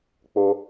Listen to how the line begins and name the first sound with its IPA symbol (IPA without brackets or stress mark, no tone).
k͡p